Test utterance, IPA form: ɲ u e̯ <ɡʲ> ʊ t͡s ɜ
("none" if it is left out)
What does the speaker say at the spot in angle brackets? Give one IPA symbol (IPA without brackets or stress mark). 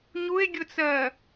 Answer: ɡʲ